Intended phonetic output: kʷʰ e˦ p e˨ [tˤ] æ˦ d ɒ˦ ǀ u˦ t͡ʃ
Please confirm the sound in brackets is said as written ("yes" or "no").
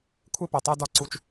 yes